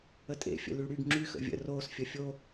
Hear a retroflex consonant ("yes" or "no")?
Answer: yes